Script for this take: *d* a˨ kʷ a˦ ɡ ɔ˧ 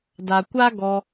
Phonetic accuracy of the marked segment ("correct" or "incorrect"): correct